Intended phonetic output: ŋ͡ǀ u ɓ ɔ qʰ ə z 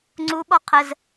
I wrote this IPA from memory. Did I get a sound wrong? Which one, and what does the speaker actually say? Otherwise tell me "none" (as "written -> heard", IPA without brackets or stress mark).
none